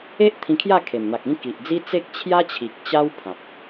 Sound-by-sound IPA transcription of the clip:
e˦ ʔ t̪ʰ ĩ˧ kʰ j a˥˧ kʰ e˨˩ m n̪ a˨ k̚ ĩ˥˧ k i˨ ʔ d͡z i˦ t͡s e˦ k̚ t͡ɕʰ j a˦ t͡ɕʰ i˨ k̚ t͡ɕ a˦ w pʰ ã˨ p̚

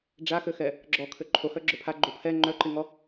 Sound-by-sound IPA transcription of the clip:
ɖ͡ʐ a x ø x ɛ | ɡ͡ǁ ɔ kʰ ø ǃʰ o h œ ɡ͡ǁ œ pʰ a ɡ͡ǃ o pʰ ɛ ŋ͡ǃ œ ǃ i ŋ ɔ

